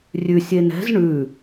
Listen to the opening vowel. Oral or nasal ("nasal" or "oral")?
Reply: oral